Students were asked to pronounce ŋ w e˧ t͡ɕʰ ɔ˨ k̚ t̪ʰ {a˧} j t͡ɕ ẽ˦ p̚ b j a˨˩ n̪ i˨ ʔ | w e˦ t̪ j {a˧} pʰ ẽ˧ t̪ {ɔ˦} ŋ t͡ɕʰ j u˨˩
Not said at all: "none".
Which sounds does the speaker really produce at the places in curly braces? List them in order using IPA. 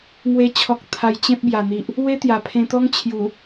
a˧, a˨˩, ɔ˦

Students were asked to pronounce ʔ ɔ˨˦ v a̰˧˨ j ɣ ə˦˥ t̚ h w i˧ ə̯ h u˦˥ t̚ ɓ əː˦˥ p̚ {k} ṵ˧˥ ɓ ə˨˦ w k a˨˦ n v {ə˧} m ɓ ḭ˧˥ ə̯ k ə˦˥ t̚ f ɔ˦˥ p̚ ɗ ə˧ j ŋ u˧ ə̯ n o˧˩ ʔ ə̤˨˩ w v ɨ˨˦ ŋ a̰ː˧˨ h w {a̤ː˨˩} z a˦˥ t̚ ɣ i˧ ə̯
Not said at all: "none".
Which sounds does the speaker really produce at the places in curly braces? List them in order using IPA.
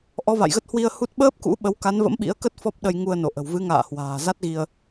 k, ə̰˧˥, a̤ː˨˩

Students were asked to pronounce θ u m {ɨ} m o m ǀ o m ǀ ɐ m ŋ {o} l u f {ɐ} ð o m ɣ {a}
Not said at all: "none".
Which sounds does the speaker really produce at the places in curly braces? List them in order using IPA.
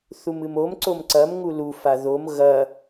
ɨ, u, a, ɐ

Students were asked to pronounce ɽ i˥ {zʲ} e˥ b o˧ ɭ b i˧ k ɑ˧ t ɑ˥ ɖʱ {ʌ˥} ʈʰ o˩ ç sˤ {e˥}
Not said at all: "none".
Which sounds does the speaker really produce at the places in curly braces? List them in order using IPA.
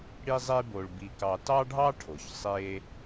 zˤ, ɑ˥, e˥

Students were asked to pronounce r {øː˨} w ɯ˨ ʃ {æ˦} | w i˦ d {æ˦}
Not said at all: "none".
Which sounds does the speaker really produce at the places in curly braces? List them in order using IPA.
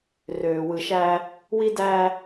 øː˨, æ˦, æ˦

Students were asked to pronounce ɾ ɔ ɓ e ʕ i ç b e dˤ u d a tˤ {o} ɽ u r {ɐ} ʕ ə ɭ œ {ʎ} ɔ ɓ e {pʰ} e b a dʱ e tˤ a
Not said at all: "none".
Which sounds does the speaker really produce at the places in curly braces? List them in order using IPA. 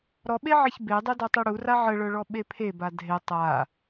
u, a, ɭ, pʰ

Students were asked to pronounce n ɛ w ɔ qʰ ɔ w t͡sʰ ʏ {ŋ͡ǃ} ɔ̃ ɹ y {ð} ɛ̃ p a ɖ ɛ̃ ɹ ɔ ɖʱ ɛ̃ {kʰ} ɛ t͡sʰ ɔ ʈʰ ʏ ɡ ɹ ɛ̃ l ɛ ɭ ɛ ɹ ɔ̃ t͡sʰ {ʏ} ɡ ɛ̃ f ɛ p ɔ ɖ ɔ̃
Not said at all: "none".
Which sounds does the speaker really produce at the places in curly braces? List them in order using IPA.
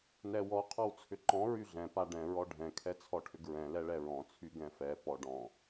ǃ, ɮ, kʰ, y

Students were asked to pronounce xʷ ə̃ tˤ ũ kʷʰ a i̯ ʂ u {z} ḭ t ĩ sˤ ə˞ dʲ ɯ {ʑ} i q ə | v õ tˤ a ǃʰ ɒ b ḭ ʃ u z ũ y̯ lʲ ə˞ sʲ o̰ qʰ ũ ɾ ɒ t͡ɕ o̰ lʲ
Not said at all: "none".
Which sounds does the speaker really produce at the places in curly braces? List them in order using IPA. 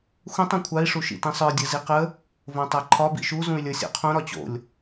ʃ, z

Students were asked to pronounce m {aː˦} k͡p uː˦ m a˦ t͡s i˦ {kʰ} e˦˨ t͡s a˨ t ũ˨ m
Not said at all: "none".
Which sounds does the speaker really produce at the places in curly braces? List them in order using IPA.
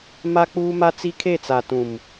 a˦, kʰ

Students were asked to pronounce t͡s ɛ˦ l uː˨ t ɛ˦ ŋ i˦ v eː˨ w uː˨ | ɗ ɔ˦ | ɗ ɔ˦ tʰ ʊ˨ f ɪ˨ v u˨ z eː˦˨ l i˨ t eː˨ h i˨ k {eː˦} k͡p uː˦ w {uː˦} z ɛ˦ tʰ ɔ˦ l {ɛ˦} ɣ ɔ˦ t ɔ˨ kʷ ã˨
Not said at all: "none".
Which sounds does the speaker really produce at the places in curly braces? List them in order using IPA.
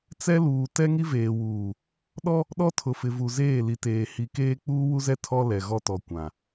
eː˦, u˦, ɛ˨

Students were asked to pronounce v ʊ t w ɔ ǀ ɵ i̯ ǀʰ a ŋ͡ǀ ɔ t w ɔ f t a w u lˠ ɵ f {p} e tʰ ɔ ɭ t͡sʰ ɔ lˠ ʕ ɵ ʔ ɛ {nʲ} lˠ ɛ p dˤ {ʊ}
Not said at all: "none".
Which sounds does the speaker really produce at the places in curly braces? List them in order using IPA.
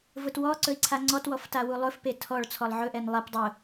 p, n, ʊ

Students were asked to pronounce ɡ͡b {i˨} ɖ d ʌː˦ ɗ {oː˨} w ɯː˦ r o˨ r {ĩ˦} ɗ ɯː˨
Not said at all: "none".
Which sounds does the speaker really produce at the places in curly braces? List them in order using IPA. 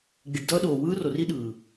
i˨, oː˨, i˦

